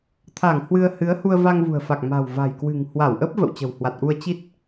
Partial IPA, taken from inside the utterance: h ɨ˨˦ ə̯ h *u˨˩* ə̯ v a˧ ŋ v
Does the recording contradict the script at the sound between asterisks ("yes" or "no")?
yes